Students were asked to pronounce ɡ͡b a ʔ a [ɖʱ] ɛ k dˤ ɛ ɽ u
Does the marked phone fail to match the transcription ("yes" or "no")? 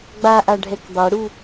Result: no